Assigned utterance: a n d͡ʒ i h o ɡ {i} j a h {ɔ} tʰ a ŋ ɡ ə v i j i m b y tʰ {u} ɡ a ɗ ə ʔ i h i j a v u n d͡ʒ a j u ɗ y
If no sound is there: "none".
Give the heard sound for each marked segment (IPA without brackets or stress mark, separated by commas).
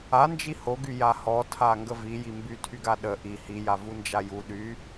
y, ɔ, y